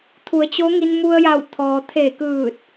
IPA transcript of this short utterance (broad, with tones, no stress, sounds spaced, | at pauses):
t̪ʰ u˩˧ ə̯ t͡ɕ o˧˥ ŋ i˧ n m u˧ ə̯ j a˧˩ w t̪ʰ ɔː˩ t̪ʰ e˧˩ k ɯː˧˩ t̚